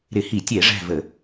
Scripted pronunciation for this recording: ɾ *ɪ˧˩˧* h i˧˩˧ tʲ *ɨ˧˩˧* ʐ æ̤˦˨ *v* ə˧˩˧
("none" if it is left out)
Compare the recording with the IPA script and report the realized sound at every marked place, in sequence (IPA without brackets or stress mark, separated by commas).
ɪ˧˩˧, ɛ˧˩˧, v